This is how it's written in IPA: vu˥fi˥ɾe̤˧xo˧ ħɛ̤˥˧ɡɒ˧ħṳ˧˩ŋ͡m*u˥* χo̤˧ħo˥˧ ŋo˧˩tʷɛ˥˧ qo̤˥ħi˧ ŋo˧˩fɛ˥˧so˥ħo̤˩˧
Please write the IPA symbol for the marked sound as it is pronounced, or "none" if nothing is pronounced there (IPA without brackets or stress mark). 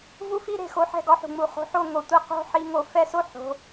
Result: u˧˩